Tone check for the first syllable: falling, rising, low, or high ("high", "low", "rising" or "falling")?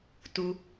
low